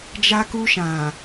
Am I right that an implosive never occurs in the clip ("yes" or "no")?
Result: yes